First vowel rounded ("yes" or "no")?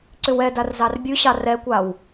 yes